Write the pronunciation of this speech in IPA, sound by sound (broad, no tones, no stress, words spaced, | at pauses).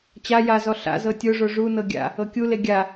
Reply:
t͡ɕa jazɔ ɬa̰zɤ tʲoʐo ʐunɤ ɡʲa̰ | ɤkʲule ɡʲa